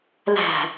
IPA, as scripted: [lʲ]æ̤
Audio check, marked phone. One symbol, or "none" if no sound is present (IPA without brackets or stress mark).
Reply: l